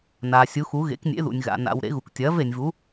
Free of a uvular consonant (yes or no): yes